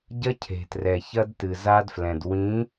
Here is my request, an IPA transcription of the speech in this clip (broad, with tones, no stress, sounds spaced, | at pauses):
ɟ ɐ˦ cʰ e̤˨ t r ɛ˨ ç ɐ˦ d t ɨ˨ z a˦ d f l ɛ̃˨ d w ĩ˨˦